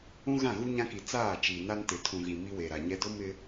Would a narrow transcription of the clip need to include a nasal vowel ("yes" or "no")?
yes